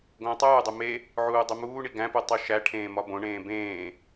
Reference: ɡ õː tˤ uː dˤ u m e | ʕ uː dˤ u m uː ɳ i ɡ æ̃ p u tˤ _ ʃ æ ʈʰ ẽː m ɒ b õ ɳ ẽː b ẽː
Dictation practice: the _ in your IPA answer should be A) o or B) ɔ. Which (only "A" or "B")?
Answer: A